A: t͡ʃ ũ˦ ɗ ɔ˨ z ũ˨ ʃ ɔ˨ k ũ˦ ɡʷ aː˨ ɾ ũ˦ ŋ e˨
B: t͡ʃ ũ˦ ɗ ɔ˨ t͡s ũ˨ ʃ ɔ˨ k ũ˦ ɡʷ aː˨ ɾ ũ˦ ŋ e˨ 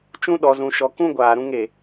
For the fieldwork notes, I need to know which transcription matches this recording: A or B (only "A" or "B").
A